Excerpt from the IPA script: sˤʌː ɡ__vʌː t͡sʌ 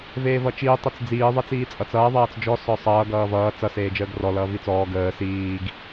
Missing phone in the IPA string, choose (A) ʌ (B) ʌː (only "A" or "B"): B